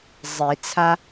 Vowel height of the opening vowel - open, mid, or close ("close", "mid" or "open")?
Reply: close